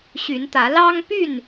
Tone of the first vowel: rising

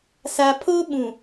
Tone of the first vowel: low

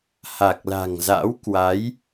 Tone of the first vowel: low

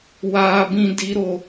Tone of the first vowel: high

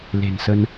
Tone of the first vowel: low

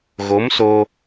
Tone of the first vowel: rising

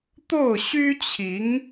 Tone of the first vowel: falling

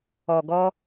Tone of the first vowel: low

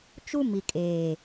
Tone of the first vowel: high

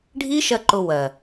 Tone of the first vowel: high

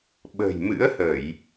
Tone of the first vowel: low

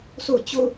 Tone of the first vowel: falling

